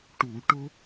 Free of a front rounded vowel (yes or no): yes